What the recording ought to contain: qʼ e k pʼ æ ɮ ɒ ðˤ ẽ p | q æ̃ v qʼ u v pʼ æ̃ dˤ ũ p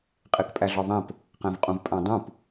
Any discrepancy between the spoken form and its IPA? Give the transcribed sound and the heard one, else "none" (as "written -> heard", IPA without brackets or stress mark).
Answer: u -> ũ